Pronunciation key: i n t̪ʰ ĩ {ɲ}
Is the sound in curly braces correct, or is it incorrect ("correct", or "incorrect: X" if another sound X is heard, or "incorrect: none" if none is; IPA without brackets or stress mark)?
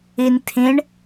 incorrect: ɳ